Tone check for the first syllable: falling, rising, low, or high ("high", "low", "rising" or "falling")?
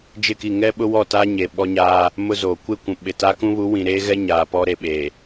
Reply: falling